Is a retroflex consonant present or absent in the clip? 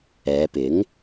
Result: absent